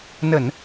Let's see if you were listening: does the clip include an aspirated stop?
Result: no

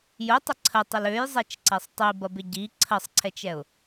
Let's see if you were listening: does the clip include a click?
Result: yes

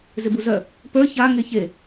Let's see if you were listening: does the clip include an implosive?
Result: no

